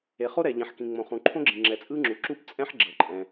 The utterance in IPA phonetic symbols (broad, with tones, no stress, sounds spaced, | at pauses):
e˩ χ o˥ ɾ ɛ˩ ʎ ĩ˩ ħ k ĩ˩ ŋ͡m õ˩ χ ũ˩ ǃʰ õ˥ ɡ͡ǁ ĩ˩ ŋ͡ǁ ɛ˩ t͡sʼ ɯ˥ ŋ͡ǁ u˩ ǁ u˥ p t͡sʼ ɛ̃˥ ħ ɡ͡ǁ ɤ˩ ǃʼ ɛ̃˩